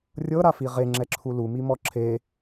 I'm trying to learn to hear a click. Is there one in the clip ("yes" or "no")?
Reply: yes